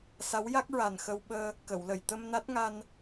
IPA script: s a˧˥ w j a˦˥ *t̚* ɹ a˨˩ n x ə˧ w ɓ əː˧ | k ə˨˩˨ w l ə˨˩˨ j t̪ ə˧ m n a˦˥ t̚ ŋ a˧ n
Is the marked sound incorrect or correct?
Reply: incorrect